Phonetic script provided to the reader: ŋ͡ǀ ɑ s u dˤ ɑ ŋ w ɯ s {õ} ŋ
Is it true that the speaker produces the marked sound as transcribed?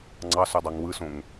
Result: yes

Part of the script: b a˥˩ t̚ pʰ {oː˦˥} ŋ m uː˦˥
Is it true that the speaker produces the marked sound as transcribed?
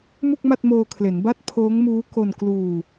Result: yes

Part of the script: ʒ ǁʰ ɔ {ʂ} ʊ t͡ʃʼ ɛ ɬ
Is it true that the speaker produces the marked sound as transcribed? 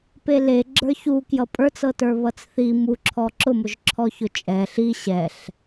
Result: no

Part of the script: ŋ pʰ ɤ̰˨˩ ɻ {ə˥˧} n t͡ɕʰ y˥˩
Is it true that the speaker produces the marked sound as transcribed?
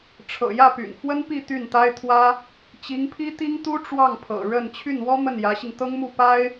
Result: yes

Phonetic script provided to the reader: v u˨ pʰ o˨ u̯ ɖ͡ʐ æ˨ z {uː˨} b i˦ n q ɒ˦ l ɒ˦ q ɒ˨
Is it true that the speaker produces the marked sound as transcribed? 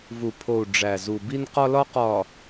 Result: no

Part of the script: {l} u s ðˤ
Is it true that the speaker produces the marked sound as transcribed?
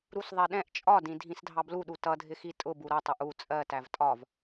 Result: no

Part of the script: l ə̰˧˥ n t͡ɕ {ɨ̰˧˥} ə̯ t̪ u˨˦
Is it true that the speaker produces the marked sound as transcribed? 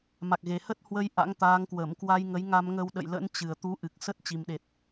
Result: no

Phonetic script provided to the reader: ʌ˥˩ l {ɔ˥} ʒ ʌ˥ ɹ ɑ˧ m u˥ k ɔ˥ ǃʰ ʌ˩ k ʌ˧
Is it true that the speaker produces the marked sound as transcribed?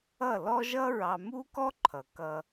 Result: yes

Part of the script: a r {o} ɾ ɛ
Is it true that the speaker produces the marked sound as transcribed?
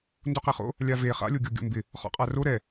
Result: yes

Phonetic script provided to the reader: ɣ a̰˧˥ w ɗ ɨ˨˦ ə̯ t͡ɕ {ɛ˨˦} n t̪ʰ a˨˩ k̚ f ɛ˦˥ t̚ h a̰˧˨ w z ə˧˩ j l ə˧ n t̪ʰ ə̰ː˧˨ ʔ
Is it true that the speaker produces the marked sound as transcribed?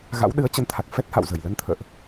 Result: no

